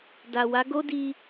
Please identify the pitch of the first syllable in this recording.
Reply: low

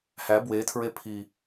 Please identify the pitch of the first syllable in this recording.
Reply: rising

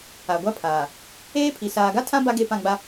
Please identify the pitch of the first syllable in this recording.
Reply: low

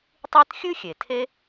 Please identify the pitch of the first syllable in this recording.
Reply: high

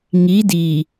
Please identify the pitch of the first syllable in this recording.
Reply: rising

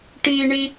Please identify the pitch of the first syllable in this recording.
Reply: high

